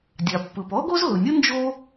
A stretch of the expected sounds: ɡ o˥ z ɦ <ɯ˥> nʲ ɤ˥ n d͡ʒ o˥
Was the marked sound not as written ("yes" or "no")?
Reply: yes